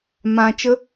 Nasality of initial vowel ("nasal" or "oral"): nasal